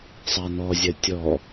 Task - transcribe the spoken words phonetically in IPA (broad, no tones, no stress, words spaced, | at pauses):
sˤanɔzʲɐ tʲɔ